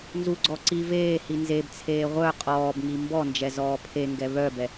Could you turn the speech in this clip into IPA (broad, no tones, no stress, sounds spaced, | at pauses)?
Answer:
n z u ɡ͡ǀ ɔ ǀ i v eː h i n z e b t͡sʰ eː ʁʷ œ qʼ ɔː b ŋ i m b ɔ n d͡ʒ ɛ z ɔː pʰ e ŋ ɡ ɛ β œ b ɛ